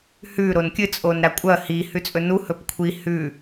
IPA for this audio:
h ʉ ɾ o n kʲ ɨ t͡sʼ o n ɾ a kʷʼ ɐ h i h ʉ t͡sʼ ɵ n u h ɵ p kʷʰ i h ʉ

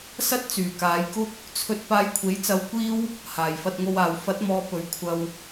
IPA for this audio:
s ɐ˥ t̚ t͡s yː˨˩ k aː˨˧ j k ʊ˥ k̚ | t͡sʰ ɵ˧ t̚ p aː˧ j kʷʰ e˨˥ j t͡s ɐ˧ w kʷ iː˥ w | h aː˨˩ j f ɐ˧ t̚ ŋ o˧ w aː˨ w f ɐ˨˥ t̚ m ɔː˨˧ p ɵ˨ ɥ kʷʰ ɐ˧ w

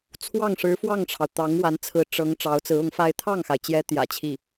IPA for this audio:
t͡sʰ w ɑ˥˩ ŋ ʂ ɻ̩˧˥ f w ɑ˥˩ ŋ ʈ͡ʂʰ ɑ˩ ʊ̯ t̪ ɑ˧˥ ŋ w a˧˥ n t͡sʰ ɹ̩˧˥ ʈ͡ʂ ɤ˧˥ ŋ ʈ͡ʂ ɑ˧˥ ʊ̯ t͡s ɹ̩˧˥ ʊ˧˥ ŋ f a˥ ɪ̯ t̪ʰ ɑ˥˩ ŋ x a˩ ɪ̯ t͡ɕ j ɛ˧˥ t̪ j ä̰˨˩ t͡ɕʰ i˥˩

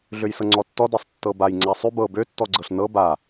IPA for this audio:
ɮ ø j s ɤ ŋ͡ǀ ɔ tː ɔ d a sˤ tː ɤ b a j ŋ͡ǀ a sˤ ʉ b ɤ b ø tː ɔ ɡ͡ǀ ɤ ɬ n ɤ b a

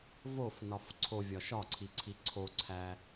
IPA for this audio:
v o f n ɒ f ǀʰ o vʲ ɒ ʃ ɒ ǀʰ i ǀʰ i ǀʰ o ǀʰ æ

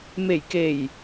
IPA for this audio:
m e˨˩ j k e˨˩ j

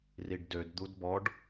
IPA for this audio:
r i ɖ d ø d d̪ u d b ɔ ɖ

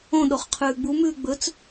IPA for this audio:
õ ɗ o χ qʰ ʉː ɡ͡b u m ʉː ɡ͡b ɵ t͡s

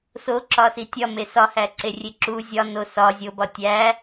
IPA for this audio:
s o ǁ ɒ s i tʲ ɒ m e s ɒ h æ ǀ e rʲ e ǁ u zʲ ɒ n o s ɒ zʲ o b ɒ tʲ æ

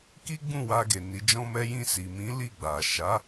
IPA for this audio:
k i˦ ɡ͡b ũ˦˨ w a˧ ɡ e˨ n i˨˦ d͡ʒ ɔ̃˦ m ɛ˦ j ĩ˧ s i˨ m ĩ˨˦ l i˦˨ ɡ͡b a˨ ʃ a˨˦

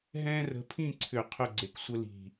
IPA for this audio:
ɦ ɛ̃˥ r ə̤˨˦ pʰ ĩ˥˨ ǀʰ ʏ˧˩˧ qʰ ʏ˥˨ ɡ͡ǀ e˧˩ k sʷ ə˥ l i̤˧˩

